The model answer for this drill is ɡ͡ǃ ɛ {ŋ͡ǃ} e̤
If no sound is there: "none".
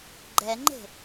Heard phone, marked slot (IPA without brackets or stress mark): ŋ͡ǃ